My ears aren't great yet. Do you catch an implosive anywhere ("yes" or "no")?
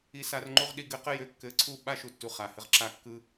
yes